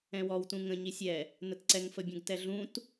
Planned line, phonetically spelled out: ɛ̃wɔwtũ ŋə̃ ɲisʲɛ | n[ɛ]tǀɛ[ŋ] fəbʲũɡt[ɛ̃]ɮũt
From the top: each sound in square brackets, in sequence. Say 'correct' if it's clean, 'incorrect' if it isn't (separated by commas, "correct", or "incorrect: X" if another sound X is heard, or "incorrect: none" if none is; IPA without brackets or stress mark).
incorrect: ə, correct, incorrect: ɛ